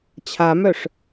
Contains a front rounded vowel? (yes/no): yes